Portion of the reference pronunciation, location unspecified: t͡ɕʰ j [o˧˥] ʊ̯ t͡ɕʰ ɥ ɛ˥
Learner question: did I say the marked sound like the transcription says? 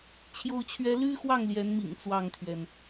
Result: no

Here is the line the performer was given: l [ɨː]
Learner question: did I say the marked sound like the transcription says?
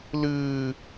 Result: yes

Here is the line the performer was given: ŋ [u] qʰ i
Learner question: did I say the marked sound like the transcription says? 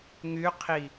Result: no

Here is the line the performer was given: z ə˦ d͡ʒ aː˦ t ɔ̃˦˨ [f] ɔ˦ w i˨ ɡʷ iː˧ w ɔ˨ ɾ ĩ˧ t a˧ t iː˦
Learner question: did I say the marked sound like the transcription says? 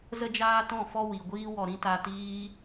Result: yes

